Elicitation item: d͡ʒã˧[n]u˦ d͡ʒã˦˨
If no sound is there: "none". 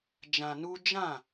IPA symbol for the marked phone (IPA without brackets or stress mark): n